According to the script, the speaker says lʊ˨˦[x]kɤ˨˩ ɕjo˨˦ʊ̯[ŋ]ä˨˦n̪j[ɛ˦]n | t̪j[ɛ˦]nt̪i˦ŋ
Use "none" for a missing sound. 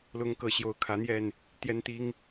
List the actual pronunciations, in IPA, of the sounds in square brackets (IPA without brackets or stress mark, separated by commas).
ŋ, kʰ, ɛ˥˨, ɛ˦